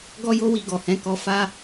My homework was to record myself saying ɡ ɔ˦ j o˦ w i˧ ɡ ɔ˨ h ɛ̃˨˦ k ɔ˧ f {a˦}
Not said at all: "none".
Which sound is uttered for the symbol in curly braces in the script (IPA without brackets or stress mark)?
a˦